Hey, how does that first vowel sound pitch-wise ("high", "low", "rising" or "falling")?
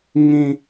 high